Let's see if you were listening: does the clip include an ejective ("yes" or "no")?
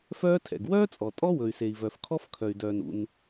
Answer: yes